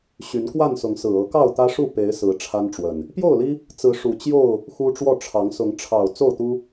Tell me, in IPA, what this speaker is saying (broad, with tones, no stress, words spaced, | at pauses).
ɕy˨˦nkwa˥˨nsʊ˨˦ŋsɹ̩˨˩ ɤ˨˦kɑ˥˨ʊ̯t̪ä˦ʂu˥˨ pe˨˦ɪ̯ sɹ̩˨˦ ʈ͡ʂʰa˦nʈ͡ʂwə˨˩n | pjo˥˨ʊ̯li˦ | t͡sɹ̩˨˦ ʂu˨˩t͡ɕjo˥˨ʊ̯ | xu˦ʈ͡ʂwɔ˥˨ ʈ͡ʂʰɑ˨˦ŋsʊ˨˦ŋ ʈ͡ʂʰɑ˨˩ʊ̯ t͡so˥˨ʊ̯t̪u˦